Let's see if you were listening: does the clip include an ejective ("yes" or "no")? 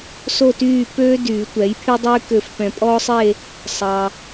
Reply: yes